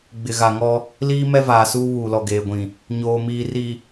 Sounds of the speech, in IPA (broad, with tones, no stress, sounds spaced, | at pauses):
ɡ͡b ɪ˨ ɣ a˨ ŋ ɔ˦ | l iː˦ m ɛ˦ v aː˨ s uː˦ β uː˨ l ɔ˨ ɡ eː˨ ɡʷ ĩ˨ | ɲ oː˨ m iː˨ r i˨